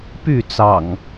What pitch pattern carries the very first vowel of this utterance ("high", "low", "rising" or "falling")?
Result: falling